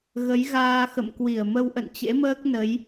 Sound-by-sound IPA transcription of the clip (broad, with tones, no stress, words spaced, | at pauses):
ɣə˨˦jɣaː˧xə̰˧˨mkwi˧˩ə̯ mə˧wʔə̰˧˨nt͡ɕḛ˧˥məː˦˥k̚ nə˨˦j